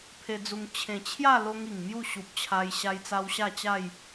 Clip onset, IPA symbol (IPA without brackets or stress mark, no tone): pʰ